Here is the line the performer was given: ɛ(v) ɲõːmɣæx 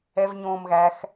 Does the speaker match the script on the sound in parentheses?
yes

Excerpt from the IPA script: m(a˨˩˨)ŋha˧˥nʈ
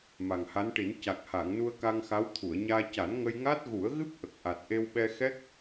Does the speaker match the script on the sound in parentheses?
no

